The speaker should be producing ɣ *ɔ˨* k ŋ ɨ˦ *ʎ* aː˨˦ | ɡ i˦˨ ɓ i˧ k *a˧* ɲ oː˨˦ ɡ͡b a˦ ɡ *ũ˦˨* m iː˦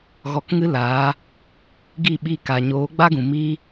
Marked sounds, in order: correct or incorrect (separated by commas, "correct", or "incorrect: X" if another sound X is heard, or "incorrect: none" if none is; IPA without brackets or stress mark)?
incorrect: ɔ˧, incorrect: l, incorrect: a˨, incorrect: ũ˨